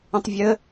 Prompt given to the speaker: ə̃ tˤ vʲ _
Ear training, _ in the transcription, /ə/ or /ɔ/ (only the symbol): ə